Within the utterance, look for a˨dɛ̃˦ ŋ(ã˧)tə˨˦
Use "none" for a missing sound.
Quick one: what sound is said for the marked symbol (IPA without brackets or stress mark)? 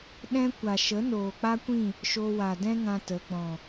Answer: ã˧